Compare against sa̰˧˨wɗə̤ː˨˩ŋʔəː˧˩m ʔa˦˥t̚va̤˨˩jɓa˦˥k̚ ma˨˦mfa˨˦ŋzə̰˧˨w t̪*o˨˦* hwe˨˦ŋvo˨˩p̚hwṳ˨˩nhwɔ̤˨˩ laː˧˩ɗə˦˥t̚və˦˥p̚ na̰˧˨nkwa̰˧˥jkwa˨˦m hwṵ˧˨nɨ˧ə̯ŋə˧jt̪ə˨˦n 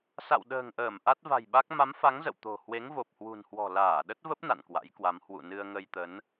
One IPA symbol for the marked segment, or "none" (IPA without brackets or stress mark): o̤˨˩